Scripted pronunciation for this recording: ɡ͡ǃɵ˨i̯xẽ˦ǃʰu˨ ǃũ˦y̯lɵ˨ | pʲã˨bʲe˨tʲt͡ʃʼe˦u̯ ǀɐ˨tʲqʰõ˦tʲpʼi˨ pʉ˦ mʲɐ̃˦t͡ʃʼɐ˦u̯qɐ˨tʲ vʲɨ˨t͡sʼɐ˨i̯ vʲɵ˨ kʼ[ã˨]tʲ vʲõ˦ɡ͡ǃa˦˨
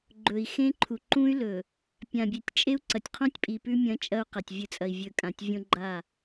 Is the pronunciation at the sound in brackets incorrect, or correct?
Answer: correct